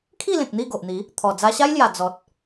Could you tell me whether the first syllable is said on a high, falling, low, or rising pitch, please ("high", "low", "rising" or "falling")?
falling